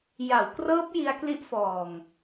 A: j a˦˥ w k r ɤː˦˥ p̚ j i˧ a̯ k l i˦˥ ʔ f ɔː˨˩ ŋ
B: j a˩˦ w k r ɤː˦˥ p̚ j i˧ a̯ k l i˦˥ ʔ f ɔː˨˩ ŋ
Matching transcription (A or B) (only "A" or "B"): B